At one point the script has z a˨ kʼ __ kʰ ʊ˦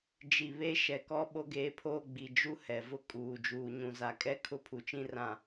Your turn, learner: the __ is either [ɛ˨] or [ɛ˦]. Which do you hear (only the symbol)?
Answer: ɛ˦